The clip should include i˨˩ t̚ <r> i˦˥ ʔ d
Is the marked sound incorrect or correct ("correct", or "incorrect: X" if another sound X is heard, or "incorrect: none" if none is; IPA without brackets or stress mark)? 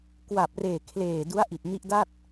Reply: incorrect: n